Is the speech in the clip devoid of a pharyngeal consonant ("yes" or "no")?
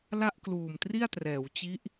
yes